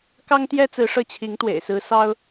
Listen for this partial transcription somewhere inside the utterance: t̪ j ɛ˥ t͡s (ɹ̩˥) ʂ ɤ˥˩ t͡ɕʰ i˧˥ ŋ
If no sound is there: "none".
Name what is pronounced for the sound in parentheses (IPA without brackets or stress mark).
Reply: ɹ̩˧˥